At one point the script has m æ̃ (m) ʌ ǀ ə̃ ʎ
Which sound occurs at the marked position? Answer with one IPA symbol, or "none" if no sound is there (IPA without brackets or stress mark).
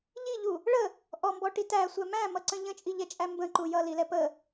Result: m